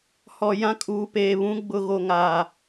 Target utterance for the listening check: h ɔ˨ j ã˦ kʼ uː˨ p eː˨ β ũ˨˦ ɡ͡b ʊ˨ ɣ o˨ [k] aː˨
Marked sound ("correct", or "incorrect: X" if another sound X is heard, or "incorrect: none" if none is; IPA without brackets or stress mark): incorrect: ŋ